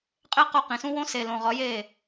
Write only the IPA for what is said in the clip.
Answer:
qʼ e˦ q o˧ q ĩ˨ s ũ˦ w õ˦ s e˨ l õ˨ ʁ ɒ˨˦ j e˦˨

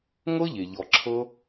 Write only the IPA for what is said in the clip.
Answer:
ŋ ɤ˦ ʎ e˨ ʎ ɔ˨ ǁʰ ɤ˧

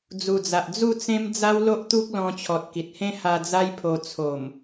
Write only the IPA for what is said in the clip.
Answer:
d͡z u˨˩ d͡z a˨ ʔ d͡z u˥˧ t͡s ẽ˦ m d͡z a˦ w l o˦ ʔ t̪ u˦ k̚ l ɔ̃˧ t͡ɕʰ ɔ˨ t̚ k i˨ t̚ h ẽ˦ h a˧ d͡z a˦ j pʰ o˧ t͡sʰ o˨˩ m

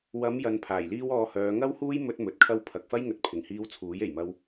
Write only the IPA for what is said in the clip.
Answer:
w ɐ˨˧ m j ɐ˨ n pʰ aː˨˩ j l iː˥ w ɔː˧ h œː˨˧ ŋ ɐ˥ w h uː˥ j m ɵ˥ t̚ m ɵ˨ t̚ kʰ ɐ˥ w pʰ ɐ˨ k̚ f ɐ˥ j ŋ ɵ˨ t̚ pʰ ɪ˨˩ ŋ h iː˧ w t͡sʰ uː˨˥ j e˨˩ j m ɐ˧ w

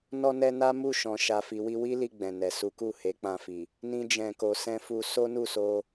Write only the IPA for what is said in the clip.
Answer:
n ɔ˧ n ɛ˧ n a˦ m u˦˨ ʃ ɔ̃˨ ʃ a˨ f i˨ w i˧ w i˦ l i˧ ɡ͡b ɛ̃˨ n ɛ˨ s u˨˦ k u˦˨ h e˨˦ k͡p ã˧ f i˨ | n ĩ˦ d͡ʒ ɛ̃˧ k o˧ s ɛ̃˧ f u˧ s o˦ n u˦˨ s o˧

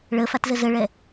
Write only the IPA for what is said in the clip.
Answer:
ɭ ə f a t z ə z ə ɭ ɛ

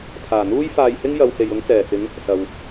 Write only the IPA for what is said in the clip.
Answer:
t̪ʰ aː˨˩ n̪ uː˥ j f aː˧ j h ɪ˥ ŋ j ɐ˨˧ w h e˨ j ʊ˨˧ ŋ t͡s ɛː˨˩ t͡s ɪ˨˧ ŋ | s ɐ˨ w

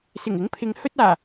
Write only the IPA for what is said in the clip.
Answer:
s ɪ˨˩ ŋ ɪ˨˥ ŋ pʰ ɪ˨˧ ŋ h ɵ˧ t̚ aː˨˩

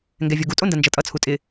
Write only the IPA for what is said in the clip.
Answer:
ŋ ɡ ɛ vʲ o ɡ u tʼ o n d ɐ n d͡ʒ ʌ tʼ ʌ t͡sʰ u tʼ ɪ

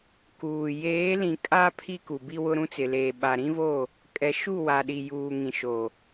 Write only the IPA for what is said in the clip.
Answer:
k uː˨ j eː˨˦ l ĩ˨ kʼ a˦ pʰ i˦ k u˨ b i˦ w ʊ˦ ɾ ũ˦ t͡s ɪ˨ l eː˨ ɓ a˨ ɾ ĩ˦ v o˦˨ | kʼ ɛ˨ ʃ u˦˨ w a˨ ɗ i˨ j uː˨ ŋ ĩ˨ ʃ o˨

